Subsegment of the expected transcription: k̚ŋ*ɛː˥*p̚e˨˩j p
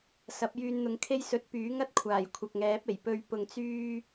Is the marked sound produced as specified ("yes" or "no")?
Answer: no